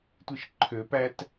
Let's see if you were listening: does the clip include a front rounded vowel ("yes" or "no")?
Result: yes